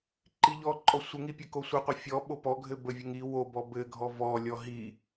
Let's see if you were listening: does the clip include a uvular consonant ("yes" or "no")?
yes